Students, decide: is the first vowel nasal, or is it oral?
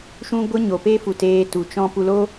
nasal